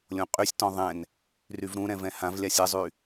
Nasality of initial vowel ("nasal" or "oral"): nasal